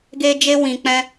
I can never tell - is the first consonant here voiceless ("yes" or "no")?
no